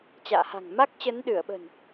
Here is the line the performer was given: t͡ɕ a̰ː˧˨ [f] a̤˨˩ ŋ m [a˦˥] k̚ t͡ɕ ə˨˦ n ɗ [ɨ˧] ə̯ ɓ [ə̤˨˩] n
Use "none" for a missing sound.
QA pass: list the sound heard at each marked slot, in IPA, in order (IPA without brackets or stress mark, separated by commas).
h, a˦˥, ɨ˧˩, ə̤˨˩